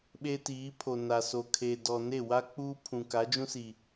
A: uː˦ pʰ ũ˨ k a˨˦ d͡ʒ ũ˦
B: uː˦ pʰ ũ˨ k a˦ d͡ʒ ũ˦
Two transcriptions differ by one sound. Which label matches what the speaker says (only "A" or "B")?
A